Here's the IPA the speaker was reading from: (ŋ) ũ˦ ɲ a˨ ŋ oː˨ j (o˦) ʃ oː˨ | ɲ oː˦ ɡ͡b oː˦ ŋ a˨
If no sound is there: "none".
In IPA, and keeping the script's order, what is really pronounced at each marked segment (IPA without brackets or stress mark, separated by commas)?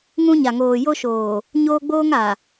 ŋ, o˦